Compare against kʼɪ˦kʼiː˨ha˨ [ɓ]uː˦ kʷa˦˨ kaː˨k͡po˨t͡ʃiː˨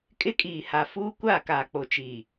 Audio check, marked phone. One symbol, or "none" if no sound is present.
f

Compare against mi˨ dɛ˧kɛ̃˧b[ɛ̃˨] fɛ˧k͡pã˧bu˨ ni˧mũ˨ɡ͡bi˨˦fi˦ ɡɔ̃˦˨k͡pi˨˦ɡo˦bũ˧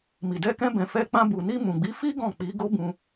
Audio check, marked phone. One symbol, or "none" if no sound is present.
ɛ̃˨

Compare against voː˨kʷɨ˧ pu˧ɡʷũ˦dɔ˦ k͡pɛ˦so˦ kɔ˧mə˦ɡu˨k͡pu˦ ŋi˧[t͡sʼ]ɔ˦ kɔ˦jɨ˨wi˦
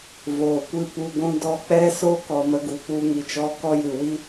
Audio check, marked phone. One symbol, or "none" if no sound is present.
t͡ʃ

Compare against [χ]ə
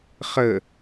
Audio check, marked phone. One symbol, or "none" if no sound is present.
χ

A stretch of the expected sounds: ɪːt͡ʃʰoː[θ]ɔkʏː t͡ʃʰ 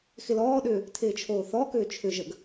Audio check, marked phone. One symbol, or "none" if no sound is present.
θ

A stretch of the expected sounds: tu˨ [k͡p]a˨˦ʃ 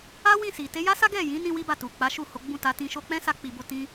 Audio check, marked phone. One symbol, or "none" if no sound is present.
k͡p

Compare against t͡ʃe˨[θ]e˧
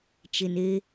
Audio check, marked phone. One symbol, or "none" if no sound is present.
n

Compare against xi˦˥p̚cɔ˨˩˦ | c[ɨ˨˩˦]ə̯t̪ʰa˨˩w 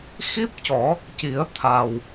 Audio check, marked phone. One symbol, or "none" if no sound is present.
i˨˩˦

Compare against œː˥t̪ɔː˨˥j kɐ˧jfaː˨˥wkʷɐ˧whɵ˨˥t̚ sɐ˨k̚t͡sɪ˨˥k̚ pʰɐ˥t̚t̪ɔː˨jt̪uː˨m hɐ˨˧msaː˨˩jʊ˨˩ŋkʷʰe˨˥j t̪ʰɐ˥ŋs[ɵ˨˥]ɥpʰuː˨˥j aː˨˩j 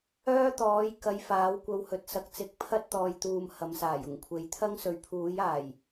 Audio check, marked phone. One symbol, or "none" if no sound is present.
ɵ˨˥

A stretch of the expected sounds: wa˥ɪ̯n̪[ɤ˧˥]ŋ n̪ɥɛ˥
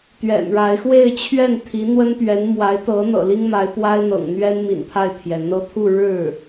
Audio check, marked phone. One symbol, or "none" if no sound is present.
ɤ̰˨˩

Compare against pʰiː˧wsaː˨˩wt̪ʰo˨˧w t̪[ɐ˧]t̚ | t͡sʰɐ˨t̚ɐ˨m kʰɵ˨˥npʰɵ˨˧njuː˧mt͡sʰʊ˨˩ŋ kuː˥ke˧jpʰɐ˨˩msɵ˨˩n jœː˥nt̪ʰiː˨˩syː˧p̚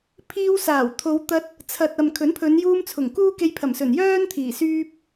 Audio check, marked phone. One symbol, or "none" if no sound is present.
ɐ˧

